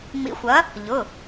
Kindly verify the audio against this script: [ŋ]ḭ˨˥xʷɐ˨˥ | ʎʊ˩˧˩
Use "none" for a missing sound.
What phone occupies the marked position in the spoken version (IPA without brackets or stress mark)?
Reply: ŋ͡m